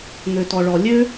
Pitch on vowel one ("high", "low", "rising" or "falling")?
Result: low